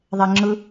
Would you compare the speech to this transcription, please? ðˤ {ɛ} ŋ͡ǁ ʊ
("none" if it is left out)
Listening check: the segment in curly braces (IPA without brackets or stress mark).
ɛ